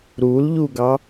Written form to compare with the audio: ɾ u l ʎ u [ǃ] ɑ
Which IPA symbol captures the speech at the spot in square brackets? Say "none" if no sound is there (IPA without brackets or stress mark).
ɡ